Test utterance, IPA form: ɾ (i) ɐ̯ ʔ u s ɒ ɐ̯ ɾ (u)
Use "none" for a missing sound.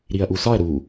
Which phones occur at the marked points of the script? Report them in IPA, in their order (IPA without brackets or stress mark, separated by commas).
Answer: i, u